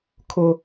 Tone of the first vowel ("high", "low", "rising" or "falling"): high